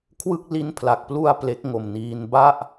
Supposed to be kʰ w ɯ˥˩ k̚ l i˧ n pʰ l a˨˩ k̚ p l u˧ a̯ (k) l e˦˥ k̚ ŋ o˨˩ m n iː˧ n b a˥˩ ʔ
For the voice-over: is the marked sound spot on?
no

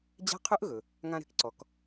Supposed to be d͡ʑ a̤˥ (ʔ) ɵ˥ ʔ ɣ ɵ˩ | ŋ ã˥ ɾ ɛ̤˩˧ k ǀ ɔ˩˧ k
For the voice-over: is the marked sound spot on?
no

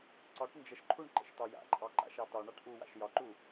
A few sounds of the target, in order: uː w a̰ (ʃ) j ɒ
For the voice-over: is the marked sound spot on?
yes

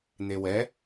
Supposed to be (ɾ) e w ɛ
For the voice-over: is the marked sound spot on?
no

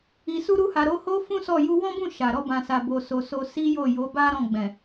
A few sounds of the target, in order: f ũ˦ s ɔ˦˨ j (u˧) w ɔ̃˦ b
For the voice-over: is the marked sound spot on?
yes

